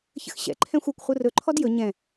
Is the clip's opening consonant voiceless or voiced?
voiceless